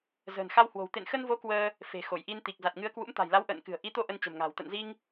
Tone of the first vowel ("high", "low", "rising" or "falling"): low